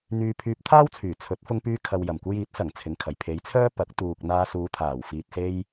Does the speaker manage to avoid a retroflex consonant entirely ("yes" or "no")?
yes